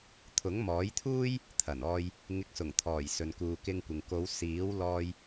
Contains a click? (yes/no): no